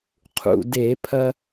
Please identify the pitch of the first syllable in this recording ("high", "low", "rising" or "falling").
low